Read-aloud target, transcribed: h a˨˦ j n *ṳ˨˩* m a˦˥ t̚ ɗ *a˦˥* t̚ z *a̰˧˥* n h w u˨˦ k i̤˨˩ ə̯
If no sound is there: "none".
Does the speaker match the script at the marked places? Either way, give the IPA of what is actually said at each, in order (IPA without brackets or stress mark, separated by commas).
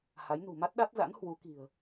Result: ṳ˨˩, a˦˥, a̰˧˥